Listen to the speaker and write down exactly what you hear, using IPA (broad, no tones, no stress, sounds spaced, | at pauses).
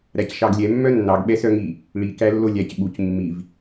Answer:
ɾ æ c ʃ ɑ ɡ lʲ ɛ mː œ nː ɑ ɡ ɓ ɛ s œ ŋ i | ɭ i k æ lː o lʲ æ c ɓ u c mː i v